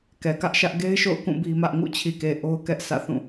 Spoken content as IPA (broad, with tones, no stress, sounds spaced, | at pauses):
k ɛ˨ k ä˦ ʔ ʃ ä˦ ʔ ɡ e˦ ɪ̯ ʃ o̰˦˨ ʊ̯ k ũ˦˨ b i˦ m ä˦ ʔ ŋ ṵ˦˨ t͡ɕʰ i˨ k e˨ ʔ o˦ ʊ̯ k ɛ˦ ʔ sʰ ä̰˦˨ θ ũ˦˨